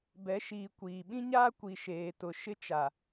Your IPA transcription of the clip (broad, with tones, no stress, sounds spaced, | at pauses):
b ɛ˨˦ ʃ iː˨ kʷ iː˨ ɓ ĩ˦ ɲ aː˦ kʷ i˨ ʃ eː˨ t ʊ˨ ʃ ɪ˦ t͡ʃ a˨